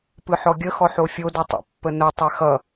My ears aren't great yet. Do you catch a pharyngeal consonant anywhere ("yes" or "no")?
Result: yes